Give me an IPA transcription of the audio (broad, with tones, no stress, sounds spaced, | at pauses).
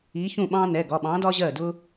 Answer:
i˨˥ ç ũ˥˩ ɓ ɑ̃˥ n ɛ˩˧˩ ɡ ɒ˩˧˩ ɓ ɑ̃˨˥ d ɒ˥ ʑ ɜ˥˩ d ʊ˥